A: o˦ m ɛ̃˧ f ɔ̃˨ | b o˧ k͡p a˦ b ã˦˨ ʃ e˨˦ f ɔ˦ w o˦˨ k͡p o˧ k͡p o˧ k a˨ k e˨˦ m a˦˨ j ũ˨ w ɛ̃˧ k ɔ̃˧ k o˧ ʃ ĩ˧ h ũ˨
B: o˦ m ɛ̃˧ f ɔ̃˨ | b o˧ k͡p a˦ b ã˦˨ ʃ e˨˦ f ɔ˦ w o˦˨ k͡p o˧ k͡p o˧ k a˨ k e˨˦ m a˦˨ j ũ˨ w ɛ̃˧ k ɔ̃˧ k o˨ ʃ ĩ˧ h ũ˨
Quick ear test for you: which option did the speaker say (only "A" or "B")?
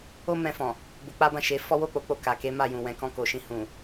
B